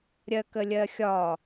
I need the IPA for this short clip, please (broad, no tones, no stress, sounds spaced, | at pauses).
ɾʲ ɜ k ə lʲ ɜ xʲ ɒ